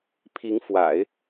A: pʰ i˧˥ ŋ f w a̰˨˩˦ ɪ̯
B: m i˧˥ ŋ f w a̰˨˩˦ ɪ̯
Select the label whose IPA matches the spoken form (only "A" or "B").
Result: A